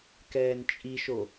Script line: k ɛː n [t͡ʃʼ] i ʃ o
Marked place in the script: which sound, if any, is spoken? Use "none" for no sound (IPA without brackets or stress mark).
t͡ʃʼ